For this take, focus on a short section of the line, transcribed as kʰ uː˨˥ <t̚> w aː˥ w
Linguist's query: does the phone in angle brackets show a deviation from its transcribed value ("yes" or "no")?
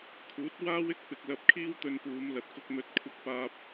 no